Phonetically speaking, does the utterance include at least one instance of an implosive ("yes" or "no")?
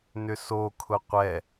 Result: no